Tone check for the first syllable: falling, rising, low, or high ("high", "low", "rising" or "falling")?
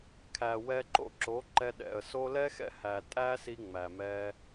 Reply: low